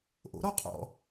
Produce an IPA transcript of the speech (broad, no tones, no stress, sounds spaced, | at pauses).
ʔ o̰ ɾ ɔ qʼ ɔ̰